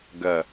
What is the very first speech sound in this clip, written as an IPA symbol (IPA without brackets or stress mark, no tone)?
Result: ɡ